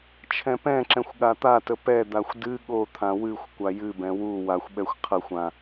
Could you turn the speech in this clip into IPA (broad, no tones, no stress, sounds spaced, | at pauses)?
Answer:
t͡ʃʰ ɛ̃ p ɛ̃ ǁ ɛ̃ xʷ ɠ a t̪ a t ə p ɛ d̪ a xʷ d ɨ ɠ o t̪ʰ ã w ɨ xʷ kʷ a j ɨ b ɛ̃ w u w a xʷ ɓ ɛ xʷ qʰ ə xʷ ã